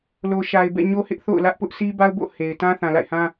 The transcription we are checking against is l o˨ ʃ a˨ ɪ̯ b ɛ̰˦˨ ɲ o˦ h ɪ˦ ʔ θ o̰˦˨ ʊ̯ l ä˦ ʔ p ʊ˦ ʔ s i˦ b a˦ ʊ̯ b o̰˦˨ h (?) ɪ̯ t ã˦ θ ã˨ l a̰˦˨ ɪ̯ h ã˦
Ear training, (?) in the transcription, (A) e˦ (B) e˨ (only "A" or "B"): B